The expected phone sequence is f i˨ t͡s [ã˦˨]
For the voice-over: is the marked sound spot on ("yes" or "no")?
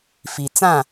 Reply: yes